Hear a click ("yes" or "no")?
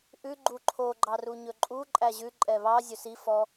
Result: yes